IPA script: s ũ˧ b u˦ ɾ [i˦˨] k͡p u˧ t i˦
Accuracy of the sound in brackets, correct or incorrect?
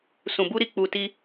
correct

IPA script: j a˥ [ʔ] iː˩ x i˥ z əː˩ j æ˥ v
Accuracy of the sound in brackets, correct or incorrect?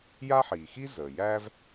incorrect: ħ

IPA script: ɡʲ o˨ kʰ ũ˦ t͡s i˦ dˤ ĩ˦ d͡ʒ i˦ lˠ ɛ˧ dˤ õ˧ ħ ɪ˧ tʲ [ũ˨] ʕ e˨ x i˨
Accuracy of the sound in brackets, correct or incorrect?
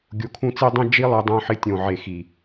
incorrect: õ˨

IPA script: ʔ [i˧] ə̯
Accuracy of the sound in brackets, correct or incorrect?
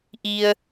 correct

